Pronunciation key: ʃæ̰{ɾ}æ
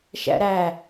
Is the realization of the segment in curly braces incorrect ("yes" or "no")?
no